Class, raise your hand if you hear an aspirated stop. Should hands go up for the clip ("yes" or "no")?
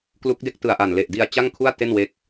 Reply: yes